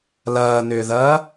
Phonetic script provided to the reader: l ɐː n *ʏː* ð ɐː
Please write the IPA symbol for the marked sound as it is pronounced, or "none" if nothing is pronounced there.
ʏː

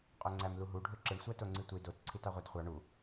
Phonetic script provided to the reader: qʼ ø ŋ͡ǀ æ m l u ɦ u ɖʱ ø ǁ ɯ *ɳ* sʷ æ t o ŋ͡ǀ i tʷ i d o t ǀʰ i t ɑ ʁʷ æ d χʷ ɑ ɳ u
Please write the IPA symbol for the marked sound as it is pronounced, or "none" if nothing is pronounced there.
ɳ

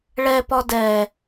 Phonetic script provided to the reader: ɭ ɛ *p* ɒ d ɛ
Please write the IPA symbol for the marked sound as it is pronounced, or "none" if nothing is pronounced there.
p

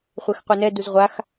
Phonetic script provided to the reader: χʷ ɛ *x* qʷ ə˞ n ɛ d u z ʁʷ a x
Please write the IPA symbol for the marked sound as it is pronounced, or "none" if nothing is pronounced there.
x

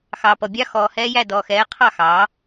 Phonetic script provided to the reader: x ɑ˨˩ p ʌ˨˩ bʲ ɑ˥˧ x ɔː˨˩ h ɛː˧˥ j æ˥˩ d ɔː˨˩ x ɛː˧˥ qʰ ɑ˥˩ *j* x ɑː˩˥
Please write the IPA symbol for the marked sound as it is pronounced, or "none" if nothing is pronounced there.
none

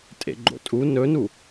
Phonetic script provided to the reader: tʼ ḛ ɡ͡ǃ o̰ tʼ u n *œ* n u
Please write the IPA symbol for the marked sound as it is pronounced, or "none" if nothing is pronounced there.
ɵ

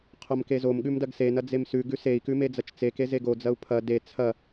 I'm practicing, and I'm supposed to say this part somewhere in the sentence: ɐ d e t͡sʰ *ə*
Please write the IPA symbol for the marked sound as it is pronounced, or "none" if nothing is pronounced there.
ɐ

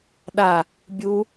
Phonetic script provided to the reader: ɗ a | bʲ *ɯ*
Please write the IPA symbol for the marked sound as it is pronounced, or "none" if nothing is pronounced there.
u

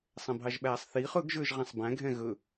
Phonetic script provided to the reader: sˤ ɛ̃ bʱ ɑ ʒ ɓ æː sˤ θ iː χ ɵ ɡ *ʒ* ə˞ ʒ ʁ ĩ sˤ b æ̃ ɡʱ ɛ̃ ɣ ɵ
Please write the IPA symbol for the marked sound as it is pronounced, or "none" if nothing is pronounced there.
ʒ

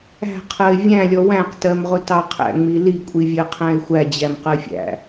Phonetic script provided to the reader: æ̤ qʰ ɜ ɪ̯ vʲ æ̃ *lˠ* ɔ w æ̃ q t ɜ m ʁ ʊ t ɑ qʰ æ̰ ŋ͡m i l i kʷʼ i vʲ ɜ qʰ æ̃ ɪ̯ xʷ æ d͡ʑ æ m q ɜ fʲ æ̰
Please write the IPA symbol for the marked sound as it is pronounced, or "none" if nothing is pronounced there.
lʲ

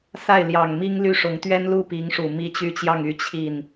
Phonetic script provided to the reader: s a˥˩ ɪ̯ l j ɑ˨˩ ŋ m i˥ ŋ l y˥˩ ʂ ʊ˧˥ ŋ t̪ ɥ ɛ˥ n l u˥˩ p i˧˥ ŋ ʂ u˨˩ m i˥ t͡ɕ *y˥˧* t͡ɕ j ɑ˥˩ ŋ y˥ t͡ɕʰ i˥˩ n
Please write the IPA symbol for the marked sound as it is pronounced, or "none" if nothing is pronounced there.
y˥˧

